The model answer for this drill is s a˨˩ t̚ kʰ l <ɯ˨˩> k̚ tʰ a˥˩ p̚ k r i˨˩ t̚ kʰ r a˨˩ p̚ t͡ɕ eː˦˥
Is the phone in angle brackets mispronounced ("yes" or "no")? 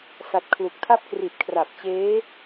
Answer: yes